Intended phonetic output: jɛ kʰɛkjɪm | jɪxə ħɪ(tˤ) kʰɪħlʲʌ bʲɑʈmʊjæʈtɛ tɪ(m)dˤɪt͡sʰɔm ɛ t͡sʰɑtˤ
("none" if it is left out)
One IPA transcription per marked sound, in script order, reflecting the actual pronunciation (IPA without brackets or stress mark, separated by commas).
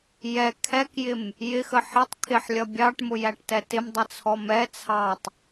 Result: tˤ, m